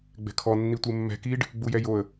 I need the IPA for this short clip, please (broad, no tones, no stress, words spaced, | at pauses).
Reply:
ɡ͡bɛ̤kʰɔ nːitʷemːɛ̤ kiɖ | ɡ͡bujɛjoə̯